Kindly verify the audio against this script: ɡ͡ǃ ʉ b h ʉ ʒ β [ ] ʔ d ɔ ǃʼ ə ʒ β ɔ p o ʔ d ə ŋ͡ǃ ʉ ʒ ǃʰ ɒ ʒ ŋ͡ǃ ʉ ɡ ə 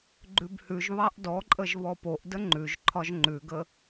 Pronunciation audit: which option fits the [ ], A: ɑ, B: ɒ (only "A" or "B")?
A